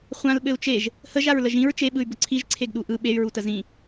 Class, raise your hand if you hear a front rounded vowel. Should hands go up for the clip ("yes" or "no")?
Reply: yes